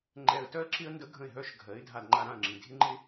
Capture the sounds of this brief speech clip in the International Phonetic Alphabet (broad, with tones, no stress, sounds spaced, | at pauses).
ŋ͡ǃ ɛ˧ ə̯ t œ˥ ə̯ ǁ ɪ˥ ə̯ n d ə˥ ɡʱ ə̃˥˩ ɪ̯ ɦ œ˥ ʃ ɡʱ ɜ˩˥ ɪ̯ dʱ a˧ d ŋ͡ǃ a˧ ɾ ã˥˩ ə̯ ŋ͡ǁ ĩ˩ dʱ ɪ˥ ŋ͡ǃ ɪ˥